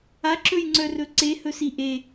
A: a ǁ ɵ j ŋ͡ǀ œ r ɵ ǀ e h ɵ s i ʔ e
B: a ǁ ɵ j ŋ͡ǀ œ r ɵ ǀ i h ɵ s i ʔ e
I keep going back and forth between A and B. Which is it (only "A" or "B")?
A